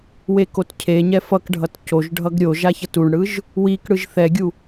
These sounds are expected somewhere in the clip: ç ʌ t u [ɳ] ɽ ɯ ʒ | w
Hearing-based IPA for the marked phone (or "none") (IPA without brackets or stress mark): ɳ